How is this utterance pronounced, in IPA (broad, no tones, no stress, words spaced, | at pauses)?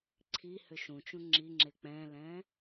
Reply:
ǀʰi hʏʃũt͡ʃũ ŋ͡ǁiŋ͡ǁe k͡pɛ̃lɛ̃